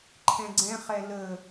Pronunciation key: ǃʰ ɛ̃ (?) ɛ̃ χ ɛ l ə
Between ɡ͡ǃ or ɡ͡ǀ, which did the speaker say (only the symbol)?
ɡ͡ǀ